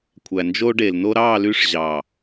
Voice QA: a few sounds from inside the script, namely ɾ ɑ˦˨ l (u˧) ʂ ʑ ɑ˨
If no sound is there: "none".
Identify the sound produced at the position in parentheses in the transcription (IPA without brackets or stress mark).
y˧